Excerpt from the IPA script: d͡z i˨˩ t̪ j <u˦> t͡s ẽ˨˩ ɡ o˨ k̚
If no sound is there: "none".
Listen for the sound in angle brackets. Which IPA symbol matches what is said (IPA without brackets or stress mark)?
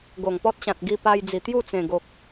u˥˧